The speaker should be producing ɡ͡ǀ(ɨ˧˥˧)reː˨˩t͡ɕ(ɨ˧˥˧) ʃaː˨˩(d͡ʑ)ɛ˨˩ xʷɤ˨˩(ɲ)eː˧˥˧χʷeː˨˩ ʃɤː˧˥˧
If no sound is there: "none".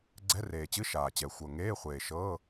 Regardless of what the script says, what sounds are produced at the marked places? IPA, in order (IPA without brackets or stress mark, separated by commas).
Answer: ɛ˧˥˧, ɨ˧˥˧, t͡ɕ, ŋ